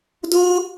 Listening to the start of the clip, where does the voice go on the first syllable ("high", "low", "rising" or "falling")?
high